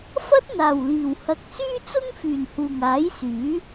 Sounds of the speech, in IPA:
f ɐ˥ t̚ n̪ aː˨˩ w l iː˨˩ w h ɐ˨ k̚ s yː˥ t͡s ʊ˥ ŋ f yː˨˩ n h uː˨˩ ŋ aː˨˥ j s yː˨˥

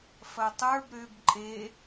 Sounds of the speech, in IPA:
f ɐ tˤ ə˞ b ɾ ø b ǃʼ e

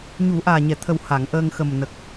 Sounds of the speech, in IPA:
ɲ u˨˩˦ ʔ aː˨˩ ɲ ɛ˨˩˨ t̪ʰ ə˨˩ w h a˨˩˨ ŋ ʔ əː˧ ŋ x ə˨˩ m n ə˨˩ k̚

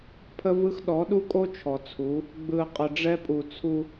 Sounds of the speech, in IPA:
pʰ ə˦ v ɯ˦ x ɗ ɔ˨˦ ɗ u˦ kʼ o˦ t͡ʃʰ ɔ˨ t͡sʰ u˨˦ | ɡ͡b ɯ˨ ə̯ qʼ ə˨ ɖ͡ʐ ɛ˦ pʼ u˨ t͡sʰ u˦

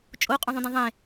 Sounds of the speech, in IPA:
t͡ʃʼ o qʼ ũ ðˤ ũ d ɛ̃ ðˤ ẽ

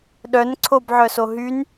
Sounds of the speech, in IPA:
ɗ œ n ǀʰ o b ʕ œ s o ɦ y n

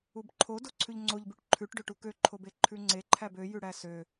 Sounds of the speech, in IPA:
u b ǃʰ o d o ǀʰ ʉ ʎ ŋ͡ǀ o ʎ b ʉ ʈ ǃʰ ʉ ʈ ɖ ø ʈ u k ø ǃʰ o b e ǃʰ ʉ ŋ͡ǀ e ǃʰ æ b ø j ʉ ɽ æ s ø

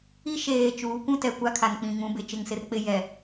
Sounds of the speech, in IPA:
i˦ ʃ eː˨ t͡ʃ uː˨˦ kʷ ũ˦ t ɛ˨ kʷ a˦ kʰ a˨ n k͡p ĩ˨ ŋ ũ˨˦ b ɪ˨ t͡ʃ ɪ˦˨ ŋ s ɪ˦ r k͡p ɪ˦ j ɛ˨

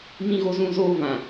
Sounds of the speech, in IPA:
m ĩ˦ ɣ o˦ z ũ˦ z oː˦ v ã˨

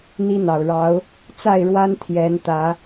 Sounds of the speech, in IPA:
n̪ i˦ n̪ ɑ˨˩ ʊ̯ ɻ ɑ˨˦ ʊ̯ | t͡s a˥˨ ɪ̯ ɻ w a˦ n t̪ʰ j ɛ˨˦ n t̪ ä˨˦

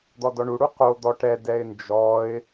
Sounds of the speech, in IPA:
d̪ ɔ d ɔ ɳ u ɽ u q o d̪ ɔ ʈ ɛ d ɛ ɪ̯ n d͡ʒ ɔ ɪ̯

